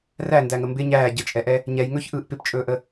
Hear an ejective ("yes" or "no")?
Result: yes